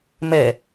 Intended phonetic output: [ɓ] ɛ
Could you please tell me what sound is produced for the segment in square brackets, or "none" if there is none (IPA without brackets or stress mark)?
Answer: m